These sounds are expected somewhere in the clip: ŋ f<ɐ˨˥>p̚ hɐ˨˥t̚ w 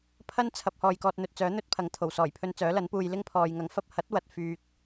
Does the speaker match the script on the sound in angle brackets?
no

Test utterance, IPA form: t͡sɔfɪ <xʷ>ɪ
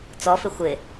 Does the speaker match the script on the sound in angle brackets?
yes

